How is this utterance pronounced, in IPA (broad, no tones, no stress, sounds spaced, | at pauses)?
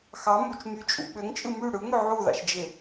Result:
x ɑ m u t͡ʃ m y t͡ʃʼ ṵ ɓ ø ŋ t͡ʃʼ ɯ m y ɽ ɯ ŋ ø ʕ u ð ɑ̰ ʃ d͡ʒ e